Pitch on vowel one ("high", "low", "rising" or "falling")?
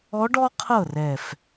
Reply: rising